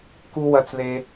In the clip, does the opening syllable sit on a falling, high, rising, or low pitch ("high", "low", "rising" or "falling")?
high